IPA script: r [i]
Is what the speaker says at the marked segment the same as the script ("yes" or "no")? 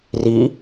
yes